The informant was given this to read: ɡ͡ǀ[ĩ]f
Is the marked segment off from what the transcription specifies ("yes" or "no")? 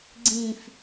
no